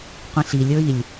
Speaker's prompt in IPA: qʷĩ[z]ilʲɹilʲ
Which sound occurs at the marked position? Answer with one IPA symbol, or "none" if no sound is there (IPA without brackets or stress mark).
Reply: ɬ